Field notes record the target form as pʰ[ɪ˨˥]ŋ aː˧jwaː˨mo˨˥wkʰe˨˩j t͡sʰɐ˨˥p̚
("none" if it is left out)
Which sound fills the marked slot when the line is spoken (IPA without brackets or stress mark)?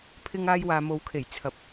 ɪ˧